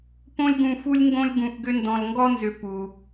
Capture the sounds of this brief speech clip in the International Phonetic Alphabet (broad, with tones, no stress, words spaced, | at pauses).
põ˦lʲɡũ˨fu˦lʲŋɡõ˦lʲ ɡũ˨ʔɡʏ˦ ndɔ̃˨lŋɡɔ˥nzʏ˨ pu˩